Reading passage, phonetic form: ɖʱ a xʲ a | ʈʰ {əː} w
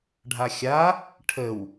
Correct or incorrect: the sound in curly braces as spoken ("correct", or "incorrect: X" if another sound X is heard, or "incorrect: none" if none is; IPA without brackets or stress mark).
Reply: incorrect: ə